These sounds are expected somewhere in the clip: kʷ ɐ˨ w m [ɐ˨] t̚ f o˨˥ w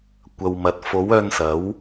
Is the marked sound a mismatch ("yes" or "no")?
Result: no